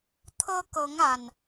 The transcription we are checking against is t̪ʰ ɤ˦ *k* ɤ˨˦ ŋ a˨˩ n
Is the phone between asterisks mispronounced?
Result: no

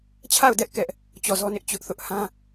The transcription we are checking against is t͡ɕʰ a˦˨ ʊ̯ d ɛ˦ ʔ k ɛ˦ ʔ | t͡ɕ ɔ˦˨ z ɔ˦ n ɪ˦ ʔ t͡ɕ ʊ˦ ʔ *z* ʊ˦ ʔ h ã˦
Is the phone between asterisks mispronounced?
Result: yes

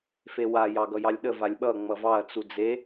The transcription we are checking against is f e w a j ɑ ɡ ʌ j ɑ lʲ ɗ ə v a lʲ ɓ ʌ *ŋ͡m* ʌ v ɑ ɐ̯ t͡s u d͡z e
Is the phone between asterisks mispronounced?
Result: no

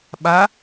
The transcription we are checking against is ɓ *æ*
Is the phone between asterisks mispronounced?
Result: yes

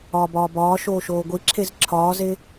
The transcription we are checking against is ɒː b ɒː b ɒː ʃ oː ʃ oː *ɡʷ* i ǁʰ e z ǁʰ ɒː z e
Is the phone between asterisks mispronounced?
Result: no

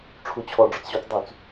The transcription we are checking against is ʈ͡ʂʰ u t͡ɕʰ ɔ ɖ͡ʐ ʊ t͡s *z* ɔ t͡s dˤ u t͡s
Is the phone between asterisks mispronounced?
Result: yes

